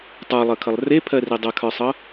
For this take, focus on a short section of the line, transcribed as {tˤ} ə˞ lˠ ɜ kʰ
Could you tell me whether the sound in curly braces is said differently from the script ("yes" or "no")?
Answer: no